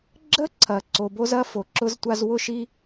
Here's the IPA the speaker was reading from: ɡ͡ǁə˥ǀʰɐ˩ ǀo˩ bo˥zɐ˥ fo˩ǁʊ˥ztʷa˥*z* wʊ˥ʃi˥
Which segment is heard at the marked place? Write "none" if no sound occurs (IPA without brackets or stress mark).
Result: z